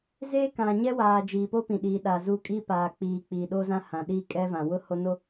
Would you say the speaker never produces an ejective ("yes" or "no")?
no